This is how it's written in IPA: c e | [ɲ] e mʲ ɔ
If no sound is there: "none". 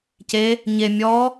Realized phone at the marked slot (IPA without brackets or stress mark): ɲ